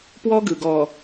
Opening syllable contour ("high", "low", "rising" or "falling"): high